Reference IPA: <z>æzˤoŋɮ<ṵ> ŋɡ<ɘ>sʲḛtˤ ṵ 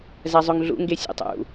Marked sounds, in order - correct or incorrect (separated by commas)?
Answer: correct, correct, incorrect